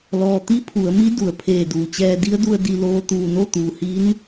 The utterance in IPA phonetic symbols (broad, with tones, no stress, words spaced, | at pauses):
lɔː˩t̪i˧˥ pʰu˩˧ə̯mi˧˥ du˩ə̯pʰeː˧˩duː˩t͡ɕɛː˧ di˧˥ə̯du˧ə̯ di˧˩loː˧ t̪uː˧˩no˥˨t̪uː˩hi˧˥n